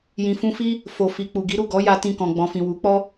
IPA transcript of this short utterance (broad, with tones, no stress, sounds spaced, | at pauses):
j ĩ˨ f ũ˧ f i˦ | f o˨ f i˨ k͡p u˨ ɡ i˨˦ ɾ u˦˨ ɡ ɔ˨˦ j a˧ t ĩ˧ k ɔ̃˨ ɡ͡b ɔ̃˨ f ĩ˨ w u˨˦ k͡p ɔ˦